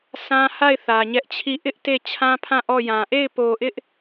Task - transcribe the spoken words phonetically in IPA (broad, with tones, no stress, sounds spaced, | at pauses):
s ã˦ h a˦˨ ɪ̯ θ ä˨ ɲ ɛ˦ ʔ t͡ɕʰ i˦˨ ʔ ɪ˦ ʔ t e˦˨ t͡ɕʰ ã˦ pʰ ã˦˨ ʔ ɔ˦˨ j ã˨ ʔ e˦˨ ɪ̯ p o˨ ʔ ɪ˦ ʔ